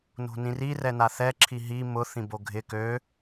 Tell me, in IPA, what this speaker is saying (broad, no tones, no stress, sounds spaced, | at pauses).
n o̤ n ĩ r i r ɛ n a θ ɛ ǁʰ i ɦ i m ʊ θ ĩ b o ɡʱ ɪ k ø